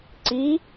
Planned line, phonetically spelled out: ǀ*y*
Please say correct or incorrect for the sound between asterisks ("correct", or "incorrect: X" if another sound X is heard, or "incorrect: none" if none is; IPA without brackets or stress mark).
incorrect: i